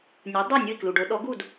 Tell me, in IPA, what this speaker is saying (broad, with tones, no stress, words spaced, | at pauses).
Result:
nʲu˩˥ dˤe˥˩ nʲɯ˥˩i̯klu˩ɖo˩˥ ɗɔ˩˥ɡu˥˩d